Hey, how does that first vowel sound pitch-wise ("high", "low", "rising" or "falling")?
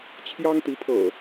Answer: high